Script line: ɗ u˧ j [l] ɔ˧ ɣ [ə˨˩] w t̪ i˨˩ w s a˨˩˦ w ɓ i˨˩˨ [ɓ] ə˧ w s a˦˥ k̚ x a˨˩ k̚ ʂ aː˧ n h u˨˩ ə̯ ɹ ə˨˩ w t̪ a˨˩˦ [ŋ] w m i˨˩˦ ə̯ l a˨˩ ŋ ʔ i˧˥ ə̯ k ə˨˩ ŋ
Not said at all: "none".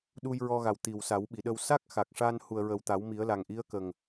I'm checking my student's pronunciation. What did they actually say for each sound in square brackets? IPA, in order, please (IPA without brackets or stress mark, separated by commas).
ɹ, a˨˩, ɗ, none